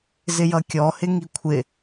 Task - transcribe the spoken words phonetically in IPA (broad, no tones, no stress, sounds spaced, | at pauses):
z ɪ j ʌ kʲ ɔ h ɪ ŋ i kʷʰ ɪ